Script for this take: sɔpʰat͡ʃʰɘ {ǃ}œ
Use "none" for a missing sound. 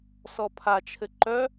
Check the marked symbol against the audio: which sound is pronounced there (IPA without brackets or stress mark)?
ǃ